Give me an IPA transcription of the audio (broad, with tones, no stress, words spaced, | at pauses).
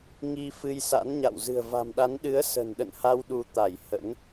ŋi˧ fɨ˧jsa̰˧˥nɲa̰˧˨w zɨ̤˨˩ə̯va̤˨˩mɗa˨˦n ɗɨ˨˦ə̯sə̤˨˩nɗə̰˧˨nha˧w ɗu˧t̪a˧˩jhə̰˧˥n